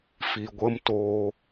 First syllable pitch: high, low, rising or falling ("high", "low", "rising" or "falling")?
low